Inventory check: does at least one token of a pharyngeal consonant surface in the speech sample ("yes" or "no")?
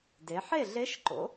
yes